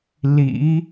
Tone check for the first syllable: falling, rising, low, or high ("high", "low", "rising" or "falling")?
rising